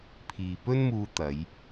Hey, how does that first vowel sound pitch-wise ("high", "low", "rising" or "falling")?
low